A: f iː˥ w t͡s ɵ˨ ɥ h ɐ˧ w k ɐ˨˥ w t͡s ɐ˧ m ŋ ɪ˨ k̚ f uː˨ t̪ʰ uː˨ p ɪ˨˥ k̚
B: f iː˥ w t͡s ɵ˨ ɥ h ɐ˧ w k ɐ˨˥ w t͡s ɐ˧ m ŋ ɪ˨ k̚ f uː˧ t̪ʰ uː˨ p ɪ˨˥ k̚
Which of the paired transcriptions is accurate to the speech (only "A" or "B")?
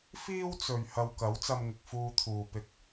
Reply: B